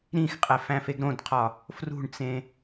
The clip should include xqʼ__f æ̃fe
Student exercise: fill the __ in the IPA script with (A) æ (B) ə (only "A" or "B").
A